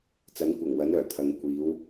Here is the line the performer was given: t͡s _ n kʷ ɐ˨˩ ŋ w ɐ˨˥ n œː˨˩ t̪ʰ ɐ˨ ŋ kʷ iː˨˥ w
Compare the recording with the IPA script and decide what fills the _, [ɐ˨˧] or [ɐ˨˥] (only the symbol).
ɐ˨˥